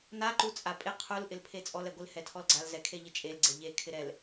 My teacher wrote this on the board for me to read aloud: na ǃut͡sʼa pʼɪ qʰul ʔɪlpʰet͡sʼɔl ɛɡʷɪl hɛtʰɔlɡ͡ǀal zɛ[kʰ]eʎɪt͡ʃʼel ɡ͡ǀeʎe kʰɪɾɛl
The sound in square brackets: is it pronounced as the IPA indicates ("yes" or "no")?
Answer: yes